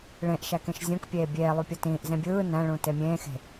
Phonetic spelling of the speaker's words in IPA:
ɭ ẽ ʔ ʃ æ k ẽ ʃ zʲ õ k pʲ eː bʲ eː lˠ u pʲ o t ĩː ʔ z ẽ bʲ ɯː n æ̃ ɭ ũ t e mʲ ẽː x e̤

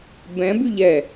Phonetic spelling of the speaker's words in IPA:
b ɛ̃ b y ʎ ɛ

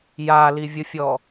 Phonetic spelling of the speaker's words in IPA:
j a l i vʲ ʊ fʲ ɔ

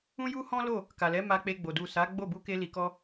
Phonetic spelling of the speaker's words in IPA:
ũ˦ j u˦ h ɔ̃˦ l o˦˨ | k a˨ l ɛ˨˦ m a˧ k͡p e˧ ɡ͡b o˨ d u˨ s a˨˦ ɡ͡b o˦˨ b u˧ k e˧ l i˨ k ɔ˧

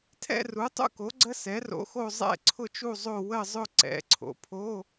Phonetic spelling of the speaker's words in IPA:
tʰ ɛ̰˦˨ r u˩˥ tˤ ṵ˦˨ k o˩˥ ɡ͡ǀ ə˧˥˧ s ɛ˩˥ r o̰˩˥ x o˦˨ zˤ ɛ̰˦˨ ǀʰ ʊ˦˨ t͡ʃ u˦˨ zˤ o˦˨ w ə˦˨ zˤ ʊ˦˨ ǀ ɛ̰˩˥ ǀʰ o̰˩˥ pʰ o˧˥˧

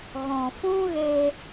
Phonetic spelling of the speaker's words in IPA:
ɣ ɔ̃˨ f ũ˦ ɣ e˧

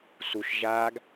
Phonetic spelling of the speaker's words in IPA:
s u ʃ ʒ aː ɡ

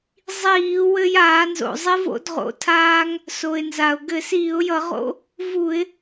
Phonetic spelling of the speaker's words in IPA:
zˤ iː˧˩˧ w ɘ˧ j aː˧˩˧ n z o̰˩ zˤ i˧ v o̰˧˩˧ d ʁ o̰˩ tʰ aː˧ ŋ | s o˩ ɪ̯ n z a˩ ʊ̯ ɡ ɘ˧˩˧ s iː˧˩˧ ʊ̯ j ʌ˧˩˧ ʁ o̰˧ | v u˧˩˧ ɪ̯

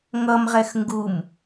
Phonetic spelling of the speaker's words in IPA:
ŋ ʌ m ʁ ɛ x ŋ ɡ u m

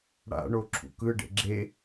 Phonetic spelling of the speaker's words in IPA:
ɽ a̰ ɳ o ǁʰ ṵ k ɯ ɖ ḛ ɡ͡ǁ e

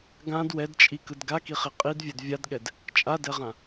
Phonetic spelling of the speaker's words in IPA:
ɡ ã d w ɛ d t͡ʃʼ i k ɯ d ɡ a k i χ i qʼ i d vʲ ɛ d vʲ a d ɠ ɛ d | t͡ʃʼ a d ɛ ʁ ã

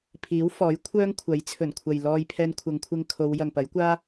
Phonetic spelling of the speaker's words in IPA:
pʰ iː˨˥ w f ɔː˨˥ j kʷʰ œː˥ ŋ kʷʰ ɐ˨˥ j t͡sʰ ɵ˨˩ n kʷʰ ɐ˨ j l ɔː˧ j pʰ ɛː˧ n kʷʰ ɐ˨˧ ŋ kʷʰ ɪ˧ ŋ kʰ o˨˧ w j ɐ˨ ŋ p ɐ˨˥ j kʷ aː˥

